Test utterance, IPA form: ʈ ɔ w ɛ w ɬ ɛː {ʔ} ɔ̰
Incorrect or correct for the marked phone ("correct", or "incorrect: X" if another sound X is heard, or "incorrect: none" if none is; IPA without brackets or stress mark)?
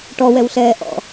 correct